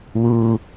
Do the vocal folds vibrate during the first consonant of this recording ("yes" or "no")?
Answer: yes